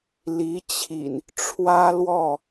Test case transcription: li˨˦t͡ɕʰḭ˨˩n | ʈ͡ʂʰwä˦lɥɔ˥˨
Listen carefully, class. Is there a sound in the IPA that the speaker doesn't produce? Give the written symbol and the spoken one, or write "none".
ɥ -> w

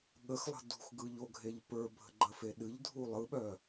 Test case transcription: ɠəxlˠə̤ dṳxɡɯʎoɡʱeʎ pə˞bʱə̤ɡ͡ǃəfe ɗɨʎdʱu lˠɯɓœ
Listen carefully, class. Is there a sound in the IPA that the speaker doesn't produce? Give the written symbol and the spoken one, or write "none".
none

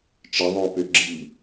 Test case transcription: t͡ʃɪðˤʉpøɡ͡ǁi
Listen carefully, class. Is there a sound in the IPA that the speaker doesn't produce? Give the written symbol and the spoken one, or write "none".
ʉ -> ø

